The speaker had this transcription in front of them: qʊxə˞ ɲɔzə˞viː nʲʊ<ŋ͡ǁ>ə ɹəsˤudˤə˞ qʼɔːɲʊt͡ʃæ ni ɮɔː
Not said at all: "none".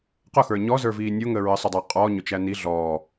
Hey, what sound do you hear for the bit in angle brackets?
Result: ŋ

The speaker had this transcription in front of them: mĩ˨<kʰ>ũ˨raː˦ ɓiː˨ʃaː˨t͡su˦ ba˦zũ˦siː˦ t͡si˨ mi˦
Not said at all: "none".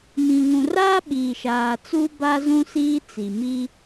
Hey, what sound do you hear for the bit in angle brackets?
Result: ŋ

